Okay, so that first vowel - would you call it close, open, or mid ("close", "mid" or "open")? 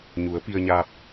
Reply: close